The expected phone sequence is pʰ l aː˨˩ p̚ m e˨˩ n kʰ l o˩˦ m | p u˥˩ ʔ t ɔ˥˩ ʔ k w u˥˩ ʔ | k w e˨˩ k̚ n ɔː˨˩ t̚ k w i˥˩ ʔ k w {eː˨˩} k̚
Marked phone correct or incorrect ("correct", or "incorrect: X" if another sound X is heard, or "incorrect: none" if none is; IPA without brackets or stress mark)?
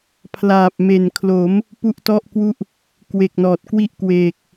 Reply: correct